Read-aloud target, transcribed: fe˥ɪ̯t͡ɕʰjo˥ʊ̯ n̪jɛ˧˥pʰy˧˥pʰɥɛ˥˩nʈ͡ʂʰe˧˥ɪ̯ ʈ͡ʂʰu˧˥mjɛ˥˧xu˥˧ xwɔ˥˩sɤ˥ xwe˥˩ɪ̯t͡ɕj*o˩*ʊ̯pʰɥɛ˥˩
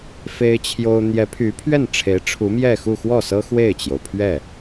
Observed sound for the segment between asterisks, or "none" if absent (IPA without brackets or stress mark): o˩